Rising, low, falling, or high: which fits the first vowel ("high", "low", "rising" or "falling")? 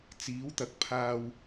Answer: rising